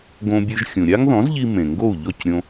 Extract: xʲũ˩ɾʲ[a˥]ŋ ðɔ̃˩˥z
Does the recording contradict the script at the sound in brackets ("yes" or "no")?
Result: no